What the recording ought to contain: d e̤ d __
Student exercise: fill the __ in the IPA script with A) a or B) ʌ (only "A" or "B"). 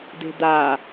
A